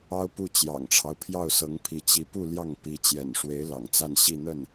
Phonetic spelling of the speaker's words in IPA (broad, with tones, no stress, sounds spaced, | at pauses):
ɑ˥ ʊ̯ p u˥˩ t͡ɕ j ɑ̰˨˩ ŋ ʈ͡ʂʰ ɑ˦ ʊ̯ pʰ j ɑ˥˩ ʊ̯ s ɤ˧˥ ŋ pʰ i˧˥ t͡ɕ i˧˥ p u˥˧ l j ɑ˥˩ ŋ p i˧˥ t͡ɕ j ɛ̰˨˩ n ʂ w e˧˥ ɪ̯ l ɑ̰˨˩ ŋ t͡s a˥˧ n ɕ i˥˧ n̪ ə˥˩ n